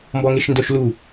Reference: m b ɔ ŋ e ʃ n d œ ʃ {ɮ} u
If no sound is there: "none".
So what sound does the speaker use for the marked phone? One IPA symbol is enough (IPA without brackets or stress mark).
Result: l